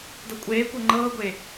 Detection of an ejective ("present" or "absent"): present